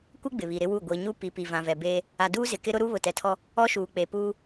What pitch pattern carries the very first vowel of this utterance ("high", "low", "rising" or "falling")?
high